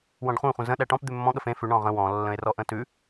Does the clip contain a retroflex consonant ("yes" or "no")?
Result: yes